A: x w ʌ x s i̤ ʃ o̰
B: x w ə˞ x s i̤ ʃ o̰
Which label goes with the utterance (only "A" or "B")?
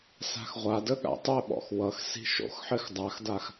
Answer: A